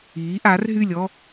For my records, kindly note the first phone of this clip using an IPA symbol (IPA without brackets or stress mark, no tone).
iː